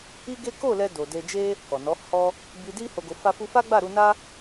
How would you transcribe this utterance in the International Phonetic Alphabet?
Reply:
i˦ ɡ e˦ k o˦˨ l ɛ˧ d o˨ d e˧ d͡ʒ e˦ | k ɔ˨ n ɔ˨˦ h ɔ˦ | b i˧ d i˦ h o˧ ɡ o˧ f a˦ f u˦ f a˦ ɡ͡b a˦˨ ɾ u˧ n a˦

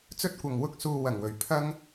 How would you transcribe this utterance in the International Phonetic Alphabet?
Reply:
t͡s ɵ˥ t̚ kʷ ɐ˨ ŋ w ʊ˥ k̚ s uː˧ w ɐ˨˩ ŋ w ɵ˨˩ ɥ pʰ ɐ˥ ŋ

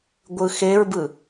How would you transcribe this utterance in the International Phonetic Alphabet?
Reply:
ɡʷ ɯ x e ɹ b ɯ

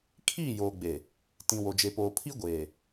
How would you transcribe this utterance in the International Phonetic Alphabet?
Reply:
kʰ iː˦˨ j oː˨ ɡ͡b e˨ | t ĩ˨ w o˨ d͡ʒ e˨ p oː˨ pʰ i˦ ɡʷ eː˨

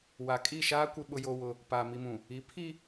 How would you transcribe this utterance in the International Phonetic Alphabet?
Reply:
w a˨ kʼ i˦˨ ʃ aː˦ kʷ ɪ˦ ɓ ʊ˦ j o˦ w ʊ˦ | p aː˨ m i˨ m ũ˨ | i˨˦ pʰ i˦

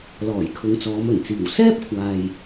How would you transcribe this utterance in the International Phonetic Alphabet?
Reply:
l ɔː˨˩ j kʰ ʊ˨˧ ŋ t͡s ɔː˨˧ m ɵ˨˩ n t͡s iː˨˩ w s ɛː˥ p̚ kʷʰ aː˨ j

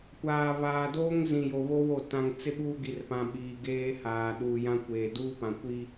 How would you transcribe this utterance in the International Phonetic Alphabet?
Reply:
kʷ aː˨ β aː˨ d oː˦ ŋ z ĩ˨ j o˨ β o˦ w o˦˨ t ã˨ ŋ t͡s ɪ˦ ɓ uː˦ ɡ i˨ r p ã˨ ɓ iː˨ ɡ eː˦ h aː˨ ɗ uː˨ j ã˦ kʷ eː˨ d uː˦ p ã˨ kʷ i˦

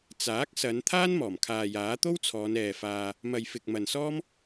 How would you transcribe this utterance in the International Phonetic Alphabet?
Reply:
t͡s aː˨˥ k̚ s ɐ˨˧ n t̪ʰ aː˥ n m ɔː˨˩ m kʰ aː˨ j aː˨˥ t̪ o˥ w t͡sʰ ɔː˨˧ n ɛː˨ f aː˧ | m ɐ˨ j f ɪ˨ k̚ m ɐ˨ n s ɔː˥ m

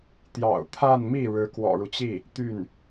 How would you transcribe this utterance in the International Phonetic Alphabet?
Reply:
t̪ j ɑ̰˨˩ ʊ̯ t̪ʰ a˥˧ n m i˥˩ ɻ ɻ̩˧˥ k w ɔ̰˨˩ ɻ u˦ t͡ɕ i˥˩ | t̪ y˥˩ n

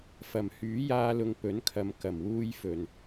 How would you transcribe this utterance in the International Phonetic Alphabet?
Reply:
f ɐ˨˩ m h yː˨˥ j aː˧ l ʊ˧ ŋ p ɵ˨˥ n kʰ ɐ˨˧ m k ɐ˨˩ m w uː˧ j f ɵ˨ n

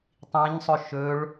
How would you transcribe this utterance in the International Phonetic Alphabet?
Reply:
tˤ ĩ ɲ sˤ ɵ ʃ ɵ ɭ

